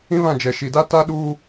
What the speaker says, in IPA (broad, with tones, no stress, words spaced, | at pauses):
ĩ˦βã˦˨ d͡ʒɛ˨ ʃi˨da˦ ta˦ ɗu˦